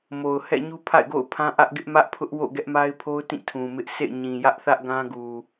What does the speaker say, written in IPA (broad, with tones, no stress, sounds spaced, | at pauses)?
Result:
m o˨ ʊ̯ h ɛ̰˦˨ ɲ u˦ pʰ a̰˦˨ ɪ̯ ɡ o̰˦˨ ʊ̯ pʰ ã˦ ʔ ä˦ ʔ ɡ ɪ˦ ʔ m ä˦ ʔ pʰ ʊ˦ ʔ w o̰˦˨ ɡ ɛ˦ ʔ m a˦ ɪ̯ pʰ o˦ ʊ̯ t ĩ˦˨ tʰ ũ˨ m ɪ˦ ʔ s ḛ˦˨ ɪ̯ ɲ ĩ˨ j ä˦ ʔ θ ä˦ ʔ ɡ ã˦ ɡ u˨